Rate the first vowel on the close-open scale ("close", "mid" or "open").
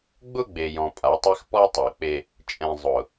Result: close